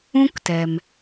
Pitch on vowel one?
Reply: high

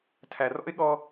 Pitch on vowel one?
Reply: low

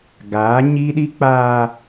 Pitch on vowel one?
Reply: rising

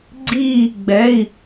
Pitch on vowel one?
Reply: falling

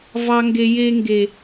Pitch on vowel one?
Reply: high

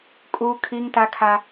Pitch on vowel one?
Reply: high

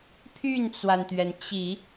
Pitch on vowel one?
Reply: falling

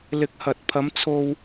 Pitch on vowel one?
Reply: rising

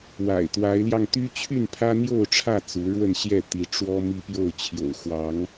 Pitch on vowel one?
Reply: low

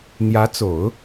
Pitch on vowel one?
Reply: rising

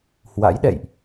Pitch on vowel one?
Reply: rising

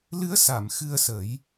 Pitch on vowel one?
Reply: rising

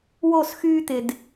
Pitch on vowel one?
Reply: falling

